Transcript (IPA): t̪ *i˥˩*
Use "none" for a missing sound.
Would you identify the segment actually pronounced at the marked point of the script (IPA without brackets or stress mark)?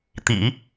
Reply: ḭ˨˩˦